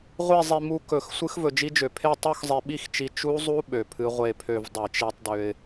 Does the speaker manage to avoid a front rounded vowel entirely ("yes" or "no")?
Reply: no